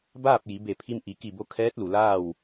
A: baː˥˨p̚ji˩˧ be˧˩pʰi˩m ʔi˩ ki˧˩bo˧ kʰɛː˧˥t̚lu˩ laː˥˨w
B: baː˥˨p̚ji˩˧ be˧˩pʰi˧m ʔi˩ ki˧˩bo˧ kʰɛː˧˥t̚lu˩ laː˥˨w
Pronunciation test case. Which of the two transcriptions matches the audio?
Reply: B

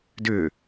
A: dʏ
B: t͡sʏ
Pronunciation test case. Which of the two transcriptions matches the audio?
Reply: A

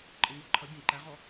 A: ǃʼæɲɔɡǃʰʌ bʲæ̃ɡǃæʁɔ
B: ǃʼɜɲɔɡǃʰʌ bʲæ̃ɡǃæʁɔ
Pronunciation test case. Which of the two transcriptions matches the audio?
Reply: B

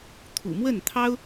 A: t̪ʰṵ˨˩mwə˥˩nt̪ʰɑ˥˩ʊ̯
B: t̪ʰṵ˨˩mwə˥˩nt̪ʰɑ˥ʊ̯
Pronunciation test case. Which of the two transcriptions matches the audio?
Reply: B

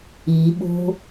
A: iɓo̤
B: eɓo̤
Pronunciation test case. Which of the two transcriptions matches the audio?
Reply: A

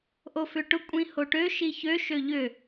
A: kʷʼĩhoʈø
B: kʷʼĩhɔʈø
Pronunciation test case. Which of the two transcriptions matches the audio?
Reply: A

